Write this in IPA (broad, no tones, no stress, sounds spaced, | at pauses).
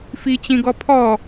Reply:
f i t͡ɕ ĩ ɡ ɔ pʰ ɔ